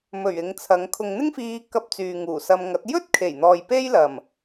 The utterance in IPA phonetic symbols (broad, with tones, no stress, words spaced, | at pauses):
mɵ˨˩ɥ ɪ˨˧ŋt͡sʰɐ˨˧ŋ kʰʊ˨ŋn̪ɪ˥ŋfiː˧ kɐ˧p̚ t͡syː˨ŋuː˨˩sɐ˧mŋɐ˨˥t̚ jɵ˥t̚kʰe˨˩jn̪ɔː˨j pe˥jlɐ˨˩m